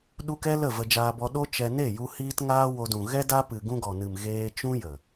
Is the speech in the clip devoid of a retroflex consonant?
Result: yes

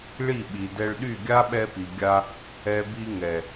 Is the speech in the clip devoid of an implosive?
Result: no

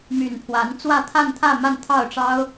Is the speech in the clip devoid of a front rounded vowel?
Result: no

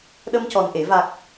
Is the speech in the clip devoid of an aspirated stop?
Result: yes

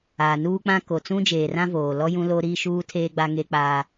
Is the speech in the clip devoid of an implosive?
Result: yes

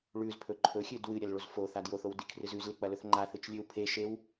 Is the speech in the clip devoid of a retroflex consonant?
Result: no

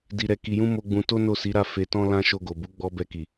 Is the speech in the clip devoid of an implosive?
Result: yes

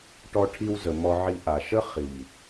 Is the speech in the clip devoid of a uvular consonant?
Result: no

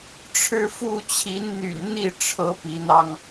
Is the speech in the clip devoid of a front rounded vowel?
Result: no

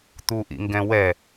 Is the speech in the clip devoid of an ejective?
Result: yes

